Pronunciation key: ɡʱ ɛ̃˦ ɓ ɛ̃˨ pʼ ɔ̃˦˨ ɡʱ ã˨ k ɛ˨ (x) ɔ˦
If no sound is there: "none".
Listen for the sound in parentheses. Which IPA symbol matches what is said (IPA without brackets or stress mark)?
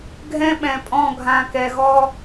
ɣ